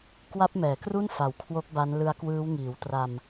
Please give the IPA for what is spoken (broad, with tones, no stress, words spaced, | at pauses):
kwa˦˥p̚mɛː˩˦kru˥˩n fa˨˩wkʰwo˦˥k̚ba˦˥n lɯ˦˥a̯kwɯː˦˥wŋiː˩˦wtra˧m